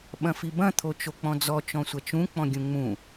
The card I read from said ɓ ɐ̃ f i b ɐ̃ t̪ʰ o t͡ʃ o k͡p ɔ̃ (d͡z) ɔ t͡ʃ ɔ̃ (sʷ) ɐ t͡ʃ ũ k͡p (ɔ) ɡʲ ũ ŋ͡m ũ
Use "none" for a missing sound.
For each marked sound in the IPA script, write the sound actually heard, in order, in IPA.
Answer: d͡z, sʷ, ɔ̃

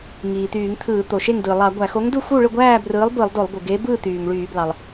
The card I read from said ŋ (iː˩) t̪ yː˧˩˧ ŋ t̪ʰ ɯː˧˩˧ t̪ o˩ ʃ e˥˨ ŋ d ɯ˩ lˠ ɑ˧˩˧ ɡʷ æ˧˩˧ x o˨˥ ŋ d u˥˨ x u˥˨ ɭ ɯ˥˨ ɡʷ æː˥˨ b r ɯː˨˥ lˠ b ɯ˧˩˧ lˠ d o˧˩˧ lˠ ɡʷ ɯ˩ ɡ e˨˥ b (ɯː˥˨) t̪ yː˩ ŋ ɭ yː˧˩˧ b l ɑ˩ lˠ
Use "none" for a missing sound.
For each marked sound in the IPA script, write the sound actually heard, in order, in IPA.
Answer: iː˩, ɯː˥˨

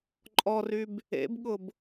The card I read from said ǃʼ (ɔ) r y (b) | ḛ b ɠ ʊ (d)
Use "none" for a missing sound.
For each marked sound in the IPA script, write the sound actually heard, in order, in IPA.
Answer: ɔ, b, b

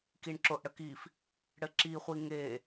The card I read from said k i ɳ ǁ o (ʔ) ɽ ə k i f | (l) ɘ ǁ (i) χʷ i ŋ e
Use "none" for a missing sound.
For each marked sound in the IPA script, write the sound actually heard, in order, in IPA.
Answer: ʔ, ɽ, i

